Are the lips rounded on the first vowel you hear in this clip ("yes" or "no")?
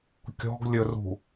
yes